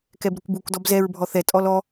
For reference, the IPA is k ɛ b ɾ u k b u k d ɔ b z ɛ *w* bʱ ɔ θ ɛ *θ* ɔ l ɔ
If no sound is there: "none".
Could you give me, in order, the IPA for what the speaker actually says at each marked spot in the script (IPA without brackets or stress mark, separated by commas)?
ɹ, tʼ